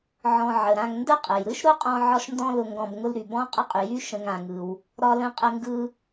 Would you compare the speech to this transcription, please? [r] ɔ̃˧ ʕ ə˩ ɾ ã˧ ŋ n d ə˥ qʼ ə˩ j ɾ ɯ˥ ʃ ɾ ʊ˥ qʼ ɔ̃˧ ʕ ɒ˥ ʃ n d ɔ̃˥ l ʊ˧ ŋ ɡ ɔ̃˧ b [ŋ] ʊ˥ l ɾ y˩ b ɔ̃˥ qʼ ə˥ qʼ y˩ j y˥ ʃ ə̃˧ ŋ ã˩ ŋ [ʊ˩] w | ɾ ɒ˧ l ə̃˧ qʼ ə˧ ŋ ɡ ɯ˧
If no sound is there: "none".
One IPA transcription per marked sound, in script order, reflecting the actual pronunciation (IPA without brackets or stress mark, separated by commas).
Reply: ʕ, ŋ, ɯ˩